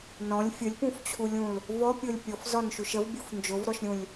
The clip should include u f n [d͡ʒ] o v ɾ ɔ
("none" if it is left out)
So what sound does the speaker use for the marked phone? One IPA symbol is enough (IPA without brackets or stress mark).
d͡ʒ